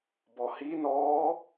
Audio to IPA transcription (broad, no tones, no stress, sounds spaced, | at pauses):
b ɔ h i n ɔː